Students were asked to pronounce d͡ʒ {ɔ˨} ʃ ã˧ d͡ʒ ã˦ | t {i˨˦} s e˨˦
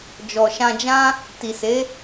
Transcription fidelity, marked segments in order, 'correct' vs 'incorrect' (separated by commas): correct, incorrect